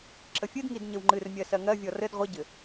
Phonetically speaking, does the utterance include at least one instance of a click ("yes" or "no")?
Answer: yes